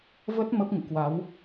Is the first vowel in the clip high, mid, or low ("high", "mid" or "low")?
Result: mid